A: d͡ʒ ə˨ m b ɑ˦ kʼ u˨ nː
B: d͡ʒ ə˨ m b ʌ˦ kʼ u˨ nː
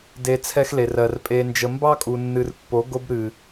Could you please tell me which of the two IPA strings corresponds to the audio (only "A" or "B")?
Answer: A